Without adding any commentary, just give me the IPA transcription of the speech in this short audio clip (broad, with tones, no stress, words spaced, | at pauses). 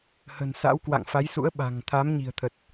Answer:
hə̤˨˩nsa̰˧˥wkwa̰˧˨ŋ fa˨˦jsṵ˧˥ə̯ ɓa̤˨˩ŋ t̪ʰa˨˦mɲi̤˨˩ə̯t̪ʰə˨˩t̚